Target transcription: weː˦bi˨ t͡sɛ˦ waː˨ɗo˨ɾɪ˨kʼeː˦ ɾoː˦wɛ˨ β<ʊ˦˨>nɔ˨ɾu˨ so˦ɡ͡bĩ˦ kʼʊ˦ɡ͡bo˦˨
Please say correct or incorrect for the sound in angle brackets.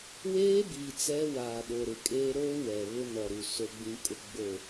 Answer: incorrect